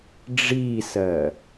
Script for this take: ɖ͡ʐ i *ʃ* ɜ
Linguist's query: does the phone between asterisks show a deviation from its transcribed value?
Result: yes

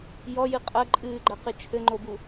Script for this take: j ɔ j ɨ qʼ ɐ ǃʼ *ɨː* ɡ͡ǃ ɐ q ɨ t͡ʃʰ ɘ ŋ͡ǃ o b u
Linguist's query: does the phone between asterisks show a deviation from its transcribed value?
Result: no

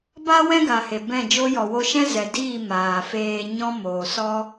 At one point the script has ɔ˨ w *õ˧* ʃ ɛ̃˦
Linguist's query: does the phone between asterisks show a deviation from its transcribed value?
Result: yes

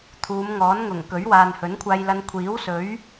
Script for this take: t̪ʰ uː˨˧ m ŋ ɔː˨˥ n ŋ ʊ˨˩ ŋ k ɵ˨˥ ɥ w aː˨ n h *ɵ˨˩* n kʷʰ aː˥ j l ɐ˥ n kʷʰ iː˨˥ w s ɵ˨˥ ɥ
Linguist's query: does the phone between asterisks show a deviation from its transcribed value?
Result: yes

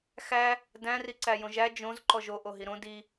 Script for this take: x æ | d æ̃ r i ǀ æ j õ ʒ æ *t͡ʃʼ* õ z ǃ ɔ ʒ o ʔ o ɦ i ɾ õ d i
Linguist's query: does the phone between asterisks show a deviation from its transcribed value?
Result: yes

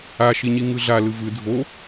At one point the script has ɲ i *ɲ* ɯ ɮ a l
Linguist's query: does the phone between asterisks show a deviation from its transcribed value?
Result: yes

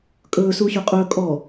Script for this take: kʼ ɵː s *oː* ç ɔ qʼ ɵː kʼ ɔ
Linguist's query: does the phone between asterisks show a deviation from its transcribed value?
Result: yes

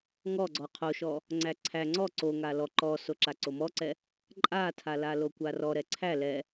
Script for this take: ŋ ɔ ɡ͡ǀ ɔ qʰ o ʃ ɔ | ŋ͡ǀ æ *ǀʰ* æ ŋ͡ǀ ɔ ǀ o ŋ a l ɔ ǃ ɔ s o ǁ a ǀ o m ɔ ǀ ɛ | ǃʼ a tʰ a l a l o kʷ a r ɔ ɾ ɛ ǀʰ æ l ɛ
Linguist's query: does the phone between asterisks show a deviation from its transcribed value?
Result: no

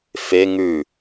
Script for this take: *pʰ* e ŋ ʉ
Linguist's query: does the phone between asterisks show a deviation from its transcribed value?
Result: yes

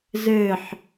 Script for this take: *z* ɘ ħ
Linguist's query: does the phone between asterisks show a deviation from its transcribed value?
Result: no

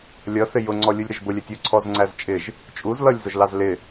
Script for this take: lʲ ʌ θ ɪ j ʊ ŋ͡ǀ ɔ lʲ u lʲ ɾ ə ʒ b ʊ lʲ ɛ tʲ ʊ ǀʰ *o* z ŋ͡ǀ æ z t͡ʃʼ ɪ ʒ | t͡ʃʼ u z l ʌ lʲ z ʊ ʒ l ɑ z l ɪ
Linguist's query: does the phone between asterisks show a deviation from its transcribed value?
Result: yes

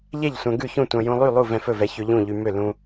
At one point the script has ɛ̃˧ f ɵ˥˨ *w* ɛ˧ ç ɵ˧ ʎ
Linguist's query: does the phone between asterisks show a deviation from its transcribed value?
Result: yes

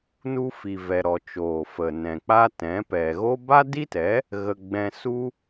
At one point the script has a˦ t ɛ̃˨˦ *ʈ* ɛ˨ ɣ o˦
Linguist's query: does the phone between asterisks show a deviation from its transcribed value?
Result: yes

